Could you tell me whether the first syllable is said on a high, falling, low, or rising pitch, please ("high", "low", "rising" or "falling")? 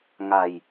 low